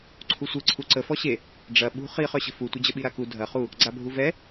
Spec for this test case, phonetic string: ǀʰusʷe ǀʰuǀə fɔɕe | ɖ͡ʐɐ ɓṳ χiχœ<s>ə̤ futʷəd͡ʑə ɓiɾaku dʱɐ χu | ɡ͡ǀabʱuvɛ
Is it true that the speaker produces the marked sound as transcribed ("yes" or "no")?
no